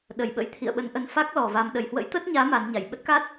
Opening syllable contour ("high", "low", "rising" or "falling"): low